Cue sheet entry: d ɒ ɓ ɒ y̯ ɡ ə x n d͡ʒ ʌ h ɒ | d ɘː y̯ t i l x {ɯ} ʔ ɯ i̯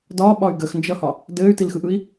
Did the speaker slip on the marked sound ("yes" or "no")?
no